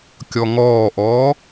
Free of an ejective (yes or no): yes